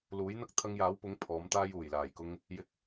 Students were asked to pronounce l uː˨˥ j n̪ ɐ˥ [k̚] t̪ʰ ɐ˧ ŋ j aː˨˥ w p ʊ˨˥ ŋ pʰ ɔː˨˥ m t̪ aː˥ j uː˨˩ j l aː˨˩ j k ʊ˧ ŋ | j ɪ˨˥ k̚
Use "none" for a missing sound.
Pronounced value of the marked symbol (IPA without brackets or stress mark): k̚